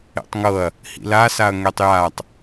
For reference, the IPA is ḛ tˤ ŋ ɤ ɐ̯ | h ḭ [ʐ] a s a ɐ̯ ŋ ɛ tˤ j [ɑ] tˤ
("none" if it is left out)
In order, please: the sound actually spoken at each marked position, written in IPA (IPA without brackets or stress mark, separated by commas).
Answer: l, a